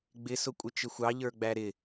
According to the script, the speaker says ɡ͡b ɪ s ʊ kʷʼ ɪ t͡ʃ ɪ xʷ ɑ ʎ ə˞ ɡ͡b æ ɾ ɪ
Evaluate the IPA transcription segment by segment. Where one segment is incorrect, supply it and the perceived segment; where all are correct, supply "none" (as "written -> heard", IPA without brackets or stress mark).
none